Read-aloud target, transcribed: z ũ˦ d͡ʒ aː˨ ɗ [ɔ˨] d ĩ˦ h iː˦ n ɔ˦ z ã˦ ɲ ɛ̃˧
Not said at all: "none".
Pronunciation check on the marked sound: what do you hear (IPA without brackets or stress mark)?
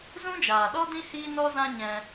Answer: ɔ˦